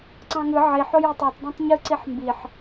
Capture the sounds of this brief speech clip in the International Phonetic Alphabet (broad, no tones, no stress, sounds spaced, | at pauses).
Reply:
ǀ ɑ̃ ŋ ɯ ʕ i ħ o j o tˤ o t dˤ ɑ̃ tˤ ɲ ɯ ǀ i ħ m b i ħ